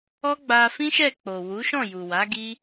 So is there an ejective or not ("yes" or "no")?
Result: no